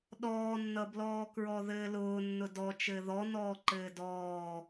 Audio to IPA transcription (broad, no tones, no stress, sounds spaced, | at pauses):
ɗ ɔː nː ʌ b l ɔː k ɹ ɔ ð ɘː l ʊː nː ʊ d ɔ t͡ʃ ɘː ð ɔ n ɔː ǃ ɘː d ɔː